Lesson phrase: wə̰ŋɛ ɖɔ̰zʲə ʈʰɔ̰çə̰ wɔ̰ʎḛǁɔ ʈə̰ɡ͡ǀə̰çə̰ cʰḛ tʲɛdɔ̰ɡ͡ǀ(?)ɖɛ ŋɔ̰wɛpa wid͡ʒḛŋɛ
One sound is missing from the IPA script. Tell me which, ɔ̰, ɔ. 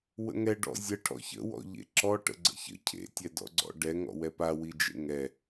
ɔ̰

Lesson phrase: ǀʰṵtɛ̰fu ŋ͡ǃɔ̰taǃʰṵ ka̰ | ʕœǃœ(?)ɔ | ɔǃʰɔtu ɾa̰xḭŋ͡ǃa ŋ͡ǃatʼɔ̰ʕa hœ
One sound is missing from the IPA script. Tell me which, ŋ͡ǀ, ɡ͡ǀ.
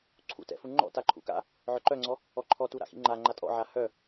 ŋ͡ǀ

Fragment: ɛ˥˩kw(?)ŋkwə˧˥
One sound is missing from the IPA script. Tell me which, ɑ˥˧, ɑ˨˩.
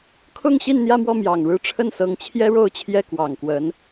ɑ˨˩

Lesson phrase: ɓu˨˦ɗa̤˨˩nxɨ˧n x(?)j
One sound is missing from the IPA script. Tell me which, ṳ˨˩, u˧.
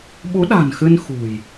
ṳ˨˩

